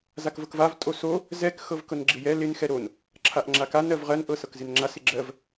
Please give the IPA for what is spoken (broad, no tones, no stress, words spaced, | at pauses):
zakvɤkvav tʼoso | zɛk xɤvkɤnɡ͡ǁɪjɛ lɪn xɛɾon | ǁʰaʔŋ͡ǁaka nɜvʁɜn ʔɤsɤkzɪnŋ͡ǁas ɪɡ͡ǁɜv